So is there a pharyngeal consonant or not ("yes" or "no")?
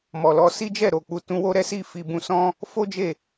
no